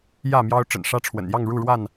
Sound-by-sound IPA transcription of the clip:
j ä˥˨ m j ɑ˦ ʊ̯ ʈ͡ʂ ə̰˨˩ n ʂ ä˦ ʈ͡ʂʰ w ə̰˨˩ n j ɑ˥˨ ŋ ɻ u˥˨ ɻ w a˥˨ n

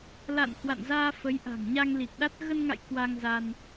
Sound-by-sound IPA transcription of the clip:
l a̰˧˨ n h w a̰˧˨ n z aː˧ f ə˨˦ j ʔ a̤˨˩ ŋ ɲ a˧ ŋ l i˨˩ k̚ ɗ a˦˥ t̚ ɣ ə˧ n ŋ a̰˧˨ j k w a˧ ŋ z a˧ n

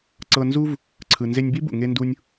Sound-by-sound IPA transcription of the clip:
ǀ ɤ˧ n z u˥ v | ǀʰ ɯ˩ n z e˧ nʲ b i˥ b ṵ˩ ŋ e˧ n d u˧ nʲ

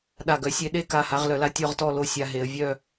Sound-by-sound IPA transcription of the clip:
ɗ a˧˩ ɡ œ˧ sʲ e˧ ɗ e˥˧ k a˧˩ h a˧ ʁ l œ˩˧ l a˧ tʲ ɔ˥˧ ʁ t ɔ˥˧ l o˥˧ sʲ a˧ ɦ e˩˧ ə̯ vʲ œ˥˧

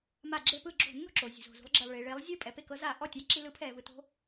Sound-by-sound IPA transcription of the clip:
m a˧˩˧ ɡ͡ǁ e˧˩˧ p ɯ˧˩˧ ɡ͡ǁ o̤˧˩˧ nː o̤˥˩ ǁ o˩ zʲ ṳ˩ z o̤˩ z ṳ˨˦ lˠ ɡ͡ǁ ɛ˩ lˠ ɭ i˩ ɭ e˨˦ lˠ zʲ ɯ˥˩ pʼ ɛ˨˦ p e˥˩ k ɤ˦ z a˧˩˧ ʔ ɔ˥˩ tʲ a˦ ǁ i˦ l ɯ˨˦ pʰ ɛː˩ v ɯ˩ t o̤˦

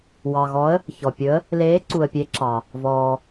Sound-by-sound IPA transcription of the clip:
w ɑ˨ ɣ ɔ˧˥ ə̯ | ç ɔ˨ pʲ ɵ˧˥ ə̯ | l eː˧˥ ǀ u˨ ə̯ pʲ e˧˥ ǁ ɑ˨ | v ɔː˨

